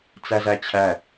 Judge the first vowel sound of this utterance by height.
low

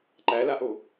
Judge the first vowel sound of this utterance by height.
low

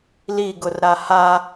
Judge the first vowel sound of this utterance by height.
high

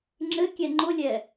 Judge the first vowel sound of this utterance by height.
mid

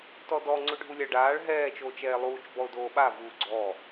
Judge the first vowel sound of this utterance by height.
mid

